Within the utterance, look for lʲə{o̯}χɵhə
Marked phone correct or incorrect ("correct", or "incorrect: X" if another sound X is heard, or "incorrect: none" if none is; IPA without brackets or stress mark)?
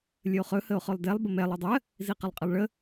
correct